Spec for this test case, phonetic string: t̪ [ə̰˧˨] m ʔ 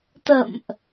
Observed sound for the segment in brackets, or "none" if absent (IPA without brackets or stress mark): ə̰˧˨